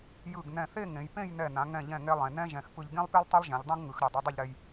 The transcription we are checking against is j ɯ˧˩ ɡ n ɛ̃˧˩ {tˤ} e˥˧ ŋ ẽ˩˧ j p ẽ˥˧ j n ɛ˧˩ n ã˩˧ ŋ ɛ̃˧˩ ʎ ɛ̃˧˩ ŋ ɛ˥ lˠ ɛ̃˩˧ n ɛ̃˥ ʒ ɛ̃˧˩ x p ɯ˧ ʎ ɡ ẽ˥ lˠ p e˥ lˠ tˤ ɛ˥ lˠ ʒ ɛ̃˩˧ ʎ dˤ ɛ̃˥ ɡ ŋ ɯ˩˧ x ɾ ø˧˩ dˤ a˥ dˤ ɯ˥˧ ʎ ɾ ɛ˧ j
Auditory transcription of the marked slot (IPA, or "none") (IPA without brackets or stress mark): θ